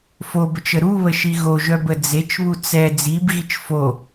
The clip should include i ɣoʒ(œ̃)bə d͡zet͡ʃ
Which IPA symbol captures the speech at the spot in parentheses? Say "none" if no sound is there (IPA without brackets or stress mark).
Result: œ